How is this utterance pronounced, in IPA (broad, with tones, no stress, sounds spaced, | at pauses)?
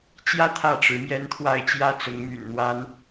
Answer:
t͡ɕ j ä˦ t̪ʰ ä˥˨ ʈ͡ʂ ɻ̩˨˦ m j ɛ˦ n t̪ʰ w a˥˨ ɪ̯ t͡ɕ j ä˦ t͡s ʊ˨˦ ŋ m y̰˨˩ n n̪ w a˦ n